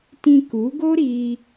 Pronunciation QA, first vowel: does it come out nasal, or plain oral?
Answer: nasal